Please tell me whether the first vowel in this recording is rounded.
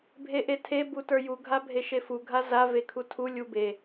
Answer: no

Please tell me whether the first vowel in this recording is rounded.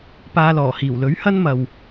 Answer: no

